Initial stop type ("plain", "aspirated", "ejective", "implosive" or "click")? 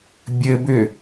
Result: plain